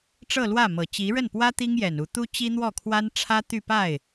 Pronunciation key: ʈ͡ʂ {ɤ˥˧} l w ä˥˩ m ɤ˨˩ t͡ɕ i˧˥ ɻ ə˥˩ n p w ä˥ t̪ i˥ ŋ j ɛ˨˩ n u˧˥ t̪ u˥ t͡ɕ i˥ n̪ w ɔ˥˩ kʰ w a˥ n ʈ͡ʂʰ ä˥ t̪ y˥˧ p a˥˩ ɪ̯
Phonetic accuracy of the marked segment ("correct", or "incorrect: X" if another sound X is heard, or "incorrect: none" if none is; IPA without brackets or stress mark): correct